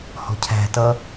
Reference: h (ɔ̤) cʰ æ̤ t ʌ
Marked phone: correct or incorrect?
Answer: correct